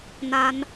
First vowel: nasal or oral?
oral